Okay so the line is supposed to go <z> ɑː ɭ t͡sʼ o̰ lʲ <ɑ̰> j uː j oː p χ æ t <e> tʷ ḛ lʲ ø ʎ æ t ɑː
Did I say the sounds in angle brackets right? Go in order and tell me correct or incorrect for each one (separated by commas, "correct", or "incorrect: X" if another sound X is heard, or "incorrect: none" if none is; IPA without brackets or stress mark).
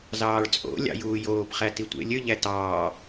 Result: correct, correct, incorrect: i